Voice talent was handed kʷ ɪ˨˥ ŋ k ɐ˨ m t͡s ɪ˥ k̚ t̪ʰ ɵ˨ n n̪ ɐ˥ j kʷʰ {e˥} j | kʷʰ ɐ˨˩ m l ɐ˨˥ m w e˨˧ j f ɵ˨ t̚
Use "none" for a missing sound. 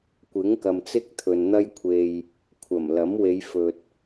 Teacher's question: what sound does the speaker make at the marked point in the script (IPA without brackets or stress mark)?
e˧